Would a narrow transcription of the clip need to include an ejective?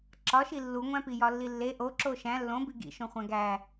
no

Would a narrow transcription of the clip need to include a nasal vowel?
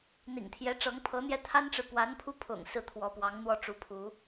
no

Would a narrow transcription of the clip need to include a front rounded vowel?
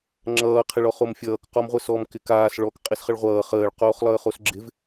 no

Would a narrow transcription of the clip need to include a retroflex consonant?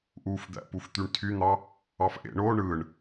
yes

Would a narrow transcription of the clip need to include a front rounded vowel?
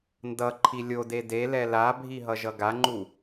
no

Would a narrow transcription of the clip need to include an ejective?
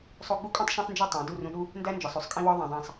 yes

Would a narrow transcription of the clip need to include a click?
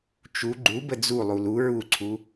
yes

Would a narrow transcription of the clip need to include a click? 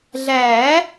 no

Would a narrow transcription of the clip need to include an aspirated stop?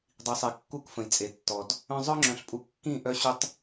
no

